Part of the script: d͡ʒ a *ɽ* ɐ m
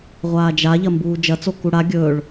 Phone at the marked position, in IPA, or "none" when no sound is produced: ʎ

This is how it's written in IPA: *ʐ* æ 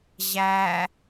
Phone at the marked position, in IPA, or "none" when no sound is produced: ʑ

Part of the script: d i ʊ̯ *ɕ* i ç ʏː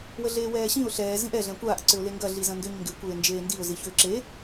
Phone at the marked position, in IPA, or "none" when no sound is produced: z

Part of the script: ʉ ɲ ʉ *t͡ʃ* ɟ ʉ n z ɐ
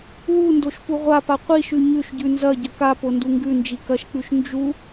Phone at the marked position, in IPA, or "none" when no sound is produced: ʃ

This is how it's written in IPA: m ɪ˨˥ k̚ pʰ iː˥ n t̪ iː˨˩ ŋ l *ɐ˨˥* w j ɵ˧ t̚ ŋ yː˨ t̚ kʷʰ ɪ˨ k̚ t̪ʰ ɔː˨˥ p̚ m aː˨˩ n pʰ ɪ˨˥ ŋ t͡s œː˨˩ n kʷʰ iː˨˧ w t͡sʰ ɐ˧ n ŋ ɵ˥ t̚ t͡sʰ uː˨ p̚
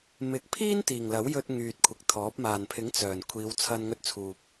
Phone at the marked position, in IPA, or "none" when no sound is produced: ɐ˨˥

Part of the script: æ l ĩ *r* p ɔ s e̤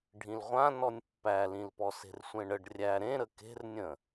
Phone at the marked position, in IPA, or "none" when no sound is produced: l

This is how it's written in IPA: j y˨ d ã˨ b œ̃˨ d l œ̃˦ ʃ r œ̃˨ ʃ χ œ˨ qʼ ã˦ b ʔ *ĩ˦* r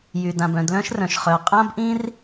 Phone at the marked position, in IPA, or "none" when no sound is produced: ĩ˦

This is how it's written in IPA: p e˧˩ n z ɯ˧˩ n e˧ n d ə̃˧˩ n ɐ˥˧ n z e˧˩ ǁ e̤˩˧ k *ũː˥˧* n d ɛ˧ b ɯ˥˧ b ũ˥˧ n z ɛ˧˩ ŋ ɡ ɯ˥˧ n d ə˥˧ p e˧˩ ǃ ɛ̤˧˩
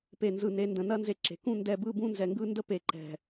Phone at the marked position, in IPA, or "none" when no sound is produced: ũ˥˧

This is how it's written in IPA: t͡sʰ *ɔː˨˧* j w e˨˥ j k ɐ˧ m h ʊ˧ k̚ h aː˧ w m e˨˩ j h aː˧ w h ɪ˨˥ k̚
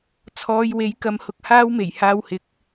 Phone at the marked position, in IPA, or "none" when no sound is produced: ɔː˨˧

